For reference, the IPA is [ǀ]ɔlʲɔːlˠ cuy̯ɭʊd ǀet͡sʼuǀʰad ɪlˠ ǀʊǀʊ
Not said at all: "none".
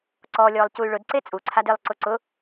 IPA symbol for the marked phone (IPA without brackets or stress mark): ǀ